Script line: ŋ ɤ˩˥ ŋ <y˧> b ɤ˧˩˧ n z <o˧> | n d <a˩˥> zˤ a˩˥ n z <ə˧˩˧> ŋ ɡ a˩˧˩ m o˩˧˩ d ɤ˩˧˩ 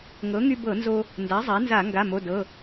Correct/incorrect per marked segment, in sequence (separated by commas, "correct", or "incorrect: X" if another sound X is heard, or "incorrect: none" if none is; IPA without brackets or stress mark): correct, correct, correct, incorrect: a˧˩˧